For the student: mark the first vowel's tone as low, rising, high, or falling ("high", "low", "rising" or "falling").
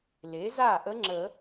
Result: rising